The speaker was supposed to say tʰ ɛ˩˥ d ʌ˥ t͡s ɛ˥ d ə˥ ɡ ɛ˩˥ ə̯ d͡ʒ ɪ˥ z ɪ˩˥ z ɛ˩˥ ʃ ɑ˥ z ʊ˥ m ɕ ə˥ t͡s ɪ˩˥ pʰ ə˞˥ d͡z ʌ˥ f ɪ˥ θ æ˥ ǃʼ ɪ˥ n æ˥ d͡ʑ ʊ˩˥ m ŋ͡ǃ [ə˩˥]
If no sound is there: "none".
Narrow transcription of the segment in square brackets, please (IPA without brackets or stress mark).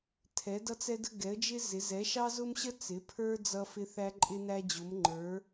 ə˞˩˥